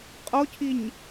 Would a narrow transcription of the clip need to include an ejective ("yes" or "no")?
yes